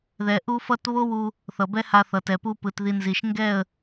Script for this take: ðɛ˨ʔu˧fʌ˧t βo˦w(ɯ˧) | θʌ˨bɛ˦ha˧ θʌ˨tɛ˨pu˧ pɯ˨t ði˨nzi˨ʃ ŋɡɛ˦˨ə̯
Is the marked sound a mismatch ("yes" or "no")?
yes